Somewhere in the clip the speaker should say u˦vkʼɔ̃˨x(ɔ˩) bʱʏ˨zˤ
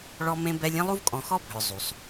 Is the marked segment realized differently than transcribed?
yes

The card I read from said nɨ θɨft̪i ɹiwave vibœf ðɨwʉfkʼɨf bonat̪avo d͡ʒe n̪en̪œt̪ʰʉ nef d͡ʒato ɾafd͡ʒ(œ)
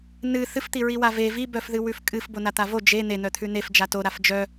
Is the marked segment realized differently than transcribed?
no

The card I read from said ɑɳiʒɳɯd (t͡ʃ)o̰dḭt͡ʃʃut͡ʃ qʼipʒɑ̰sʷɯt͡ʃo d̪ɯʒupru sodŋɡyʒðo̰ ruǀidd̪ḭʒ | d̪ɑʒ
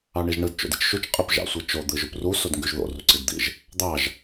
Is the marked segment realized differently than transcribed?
no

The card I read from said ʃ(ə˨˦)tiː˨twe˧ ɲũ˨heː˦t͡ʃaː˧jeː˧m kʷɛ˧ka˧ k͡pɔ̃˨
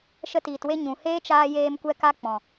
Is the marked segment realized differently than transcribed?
yes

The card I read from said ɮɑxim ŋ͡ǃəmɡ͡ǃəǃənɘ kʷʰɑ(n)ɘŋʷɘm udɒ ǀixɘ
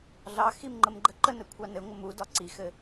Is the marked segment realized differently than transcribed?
no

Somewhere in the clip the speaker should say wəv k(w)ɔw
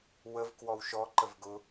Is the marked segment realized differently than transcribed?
no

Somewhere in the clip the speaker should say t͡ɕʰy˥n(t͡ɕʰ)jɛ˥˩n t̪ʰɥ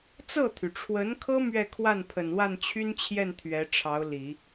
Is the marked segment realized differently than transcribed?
no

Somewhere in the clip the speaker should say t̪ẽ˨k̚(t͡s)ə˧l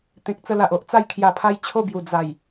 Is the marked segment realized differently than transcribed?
no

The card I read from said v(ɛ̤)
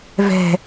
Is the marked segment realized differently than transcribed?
no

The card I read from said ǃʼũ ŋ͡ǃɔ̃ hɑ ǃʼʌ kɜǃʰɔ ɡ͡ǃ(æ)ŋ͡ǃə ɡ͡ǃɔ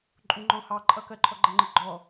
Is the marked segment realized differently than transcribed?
no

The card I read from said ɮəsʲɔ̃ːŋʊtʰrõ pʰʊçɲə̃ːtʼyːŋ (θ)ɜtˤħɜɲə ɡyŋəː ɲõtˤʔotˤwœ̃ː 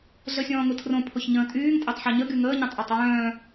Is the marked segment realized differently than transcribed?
yes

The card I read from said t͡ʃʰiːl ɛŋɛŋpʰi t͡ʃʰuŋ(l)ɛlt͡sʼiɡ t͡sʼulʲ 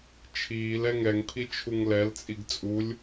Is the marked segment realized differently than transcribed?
no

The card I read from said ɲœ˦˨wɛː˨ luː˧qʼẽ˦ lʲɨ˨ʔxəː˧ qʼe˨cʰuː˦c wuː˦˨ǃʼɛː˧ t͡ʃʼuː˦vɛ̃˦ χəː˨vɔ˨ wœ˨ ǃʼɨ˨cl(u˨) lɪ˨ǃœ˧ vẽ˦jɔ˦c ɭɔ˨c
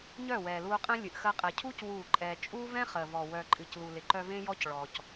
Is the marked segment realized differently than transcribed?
no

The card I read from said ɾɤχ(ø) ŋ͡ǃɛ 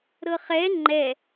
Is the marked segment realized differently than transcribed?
yes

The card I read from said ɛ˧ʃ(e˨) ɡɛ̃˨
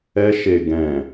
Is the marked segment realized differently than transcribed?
no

